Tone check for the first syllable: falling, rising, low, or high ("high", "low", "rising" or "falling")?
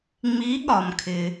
rising